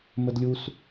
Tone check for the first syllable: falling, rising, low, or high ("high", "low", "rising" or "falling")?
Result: high